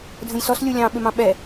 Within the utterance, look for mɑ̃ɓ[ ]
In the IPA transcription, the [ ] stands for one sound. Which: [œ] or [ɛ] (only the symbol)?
ɛ